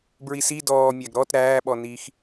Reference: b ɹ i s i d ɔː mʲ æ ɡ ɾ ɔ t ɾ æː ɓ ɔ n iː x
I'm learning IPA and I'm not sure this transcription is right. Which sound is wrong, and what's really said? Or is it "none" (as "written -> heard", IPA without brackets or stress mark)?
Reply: none